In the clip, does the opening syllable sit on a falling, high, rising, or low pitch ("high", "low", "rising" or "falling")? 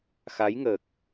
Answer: rising